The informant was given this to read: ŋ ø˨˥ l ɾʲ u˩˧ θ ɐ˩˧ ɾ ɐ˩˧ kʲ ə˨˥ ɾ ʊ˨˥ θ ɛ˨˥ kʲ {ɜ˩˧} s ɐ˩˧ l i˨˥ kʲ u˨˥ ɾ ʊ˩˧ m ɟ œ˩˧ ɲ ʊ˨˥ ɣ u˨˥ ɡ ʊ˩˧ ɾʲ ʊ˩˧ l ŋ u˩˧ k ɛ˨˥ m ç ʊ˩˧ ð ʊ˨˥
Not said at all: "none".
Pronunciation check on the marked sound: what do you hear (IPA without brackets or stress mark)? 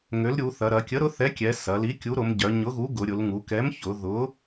ɛ˩˧